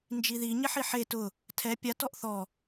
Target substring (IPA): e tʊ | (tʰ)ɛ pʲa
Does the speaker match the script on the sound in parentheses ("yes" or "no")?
yes